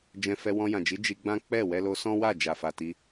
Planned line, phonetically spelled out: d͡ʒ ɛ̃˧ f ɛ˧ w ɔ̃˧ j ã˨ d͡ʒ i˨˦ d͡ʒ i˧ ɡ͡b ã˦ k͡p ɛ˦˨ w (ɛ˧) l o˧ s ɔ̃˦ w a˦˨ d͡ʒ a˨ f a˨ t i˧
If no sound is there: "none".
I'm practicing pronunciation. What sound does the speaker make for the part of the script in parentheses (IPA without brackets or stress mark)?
ɛ˧